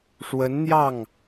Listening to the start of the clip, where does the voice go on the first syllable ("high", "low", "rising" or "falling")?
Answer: rising